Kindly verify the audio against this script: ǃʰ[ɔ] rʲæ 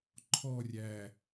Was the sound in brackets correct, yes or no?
yes